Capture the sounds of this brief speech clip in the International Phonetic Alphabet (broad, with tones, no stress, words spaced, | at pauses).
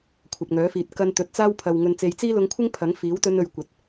kʷʰɐ˨p̚ŋœː˨˥fiː˨t̚ kɐ˧nt̪ɵ˨t̚t͡saː˥wpʰɐ˨w ŋɵ˨nt͡se˨˧jt͡siː˥lʊ˧ŋ kʷʰɪ˥ŋ pʰɐ˨˥ŋfiː˨˥wt̪ɵ˧n ɵ˨ɥ kʷɐ˨t̚